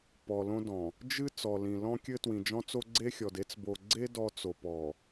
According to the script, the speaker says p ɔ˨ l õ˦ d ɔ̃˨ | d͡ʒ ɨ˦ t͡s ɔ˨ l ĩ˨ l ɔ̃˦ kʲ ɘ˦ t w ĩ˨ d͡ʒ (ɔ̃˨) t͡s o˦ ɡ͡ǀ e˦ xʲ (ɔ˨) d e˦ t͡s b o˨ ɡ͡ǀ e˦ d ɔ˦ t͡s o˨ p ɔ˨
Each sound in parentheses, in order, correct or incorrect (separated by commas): incorrect, correct